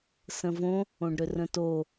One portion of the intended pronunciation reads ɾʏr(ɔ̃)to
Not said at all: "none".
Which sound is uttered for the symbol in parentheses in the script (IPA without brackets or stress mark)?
ə̃